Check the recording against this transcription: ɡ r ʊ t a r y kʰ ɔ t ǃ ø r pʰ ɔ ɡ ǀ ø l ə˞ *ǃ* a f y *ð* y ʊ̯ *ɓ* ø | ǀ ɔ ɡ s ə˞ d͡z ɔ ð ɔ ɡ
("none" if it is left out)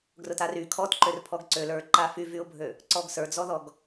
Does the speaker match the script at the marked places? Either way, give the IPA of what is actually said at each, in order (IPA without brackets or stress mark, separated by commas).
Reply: ǃ, v, bʱ